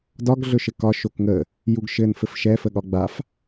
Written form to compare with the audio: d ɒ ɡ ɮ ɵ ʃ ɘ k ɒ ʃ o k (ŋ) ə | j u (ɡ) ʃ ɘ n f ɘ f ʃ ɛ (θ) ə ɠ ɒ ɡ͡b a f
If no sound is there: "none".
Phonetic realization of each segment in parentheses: ŋ, ɡ, f

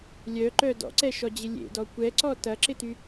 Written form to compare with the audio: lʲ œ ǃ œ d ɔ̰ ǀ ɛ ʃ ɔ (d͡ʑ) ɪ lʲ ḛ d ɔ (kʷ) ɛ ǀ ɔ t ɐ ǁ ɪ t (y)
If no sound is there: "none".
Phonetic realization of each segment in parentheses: d͡ʑ, kʷ, y

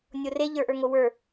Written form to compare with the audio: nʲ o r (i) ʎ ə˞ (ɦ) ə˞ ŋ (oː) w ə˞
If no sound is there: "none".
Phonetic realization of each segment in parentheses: e, ʔ, o

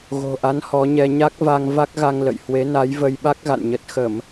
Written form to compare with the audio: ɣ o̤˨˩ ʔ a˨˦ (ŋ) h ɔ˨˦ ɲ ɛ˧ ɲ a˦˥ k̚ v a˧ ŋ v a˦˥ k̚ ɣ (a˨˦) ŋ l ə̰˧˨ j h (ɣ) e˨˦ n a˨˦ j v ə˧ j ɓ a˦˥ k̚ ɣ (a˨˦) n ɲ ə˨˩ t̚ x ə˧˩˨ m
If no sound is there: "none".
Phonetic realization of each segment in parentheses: n, a˧, w, a̰˧˨

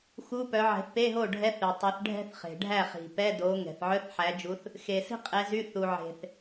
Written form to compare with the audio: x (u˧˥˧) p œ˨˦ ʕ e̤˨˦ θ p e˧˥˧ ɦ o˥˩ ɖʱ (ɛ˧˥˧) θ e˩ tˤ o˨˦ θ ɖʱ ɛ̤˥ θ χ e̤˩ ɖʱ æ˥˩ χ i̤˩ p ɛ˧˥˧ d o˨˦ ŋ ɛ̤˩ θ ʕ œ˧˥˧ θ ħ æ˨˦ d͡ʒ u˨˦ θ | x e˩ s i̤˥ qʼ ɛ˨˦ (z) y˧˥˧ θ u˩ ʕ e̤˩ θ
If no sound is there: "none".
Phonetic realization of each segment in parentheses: u˧˥˧, ɛ˧˥˧, z

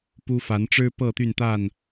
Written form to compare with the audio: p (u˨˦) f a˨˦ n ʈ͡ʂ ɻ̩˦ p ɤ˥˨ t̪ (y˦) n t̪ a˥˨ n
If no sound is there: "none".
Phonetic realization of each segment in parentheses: u˦, y˥˨

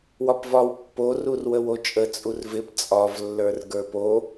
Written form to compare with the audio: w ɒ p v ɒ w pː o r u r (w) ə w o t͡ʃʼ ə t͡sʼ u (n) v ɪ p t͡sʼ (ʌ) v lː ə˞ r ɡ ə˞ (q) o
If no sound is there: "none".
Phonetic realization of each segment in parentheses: w, r, ɒ, p

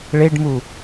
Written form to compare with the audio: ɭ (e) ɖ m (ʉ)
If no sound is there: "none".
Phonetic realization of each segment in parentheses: e, u

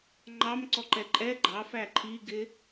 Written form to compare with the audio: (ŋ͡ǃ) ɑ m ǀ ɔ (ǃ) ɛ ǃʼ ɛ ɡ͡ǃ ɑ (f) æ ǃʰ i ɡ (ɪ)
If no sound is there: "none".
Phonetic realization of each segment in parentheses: ŋ͡ǃ, ǃ, f, ɪ

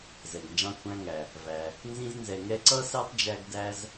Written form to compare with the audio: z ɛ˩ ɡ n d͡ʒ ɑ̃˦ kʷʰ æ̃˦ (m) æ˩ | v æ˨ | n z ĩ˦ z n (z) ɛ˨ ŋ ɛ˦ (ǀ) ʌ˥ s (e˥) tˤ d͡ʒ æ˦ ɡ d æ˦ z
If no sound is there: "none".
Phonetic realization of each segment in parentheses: ŋ, z, ǀ, ɛ˥

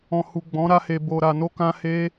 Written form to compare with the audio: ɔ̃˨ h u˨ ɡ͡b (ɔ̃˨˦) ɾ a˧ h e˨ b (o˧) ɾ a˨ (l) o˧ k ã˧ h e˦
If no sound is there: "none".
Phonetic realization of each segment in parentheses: ɔ̃˨˦, o˨, n

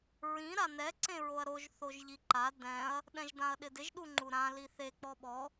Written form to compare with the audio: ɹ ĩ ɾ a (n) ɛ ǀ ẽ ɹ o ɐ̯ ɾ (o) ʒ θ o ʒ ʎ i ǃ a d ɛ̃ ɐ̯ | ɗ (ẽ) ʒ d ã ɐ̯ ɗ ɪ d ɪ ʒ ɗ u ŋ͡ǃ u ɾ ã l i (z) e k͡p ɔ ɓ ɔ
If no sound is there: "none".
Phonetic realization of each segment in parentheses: n, o, ɛ̃, θ

